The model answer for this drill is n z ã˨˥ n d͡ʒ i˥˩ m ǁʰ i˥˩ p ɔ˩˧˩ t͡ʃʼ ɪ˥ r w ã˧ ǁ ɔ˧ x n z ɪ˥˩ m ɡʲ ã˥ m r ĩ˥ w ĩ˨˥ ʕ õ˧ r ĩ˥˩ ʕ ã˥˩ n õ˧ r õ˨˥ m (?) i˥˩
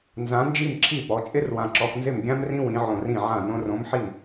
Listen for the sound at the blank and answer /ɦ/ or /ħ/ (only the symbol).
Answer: ħ